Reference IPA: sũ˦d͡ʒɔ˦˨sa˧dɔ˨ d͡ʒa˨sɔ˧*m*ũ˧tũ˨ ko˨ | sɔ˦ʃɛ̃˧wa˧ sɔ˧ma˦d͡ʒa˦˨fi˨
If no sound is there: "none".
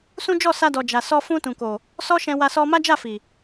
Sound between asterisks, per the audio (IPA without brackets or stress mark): f